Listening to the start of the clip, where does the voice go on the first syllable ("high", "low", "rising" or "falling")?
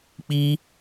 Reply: high